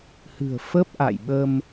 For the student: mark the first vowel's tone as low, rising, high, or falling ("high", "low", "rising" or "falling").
low